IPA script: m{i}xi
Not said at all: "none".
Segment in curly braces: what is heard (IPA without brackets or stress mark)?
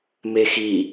e